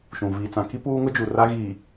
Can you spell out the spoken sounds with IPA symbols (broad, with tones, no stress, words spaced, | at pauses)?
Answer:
ʃũ˨ viː˨t͡sã˨ki˦ puː˦ŋʊ˦d͡ʒu˨ ra˦ɣiː˨